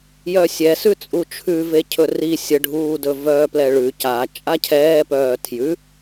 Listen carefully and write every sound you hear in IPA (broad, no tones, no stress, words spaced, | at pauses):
jœsʲɛ sʉt͡sʼut͡ʃʰʉve cʰɵri sʲəɖʱuːdɵ vœːplɛɭʉ ca t͡ʃʼacʰɛːpœː tʰjʉ